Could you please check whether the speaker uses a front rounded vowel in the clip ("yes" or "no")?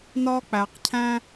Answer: no